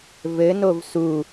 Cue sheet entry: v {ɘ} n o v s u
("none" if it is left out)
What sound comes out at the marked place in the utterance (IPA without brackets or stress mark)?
ɘ